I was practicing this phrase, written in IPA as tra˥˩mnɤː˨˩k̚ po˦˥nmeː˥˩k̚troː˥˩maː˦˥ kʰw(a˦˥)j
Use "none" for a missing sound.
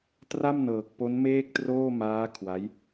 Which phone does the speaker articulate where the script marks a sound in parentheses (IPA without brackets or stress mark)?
a˦˥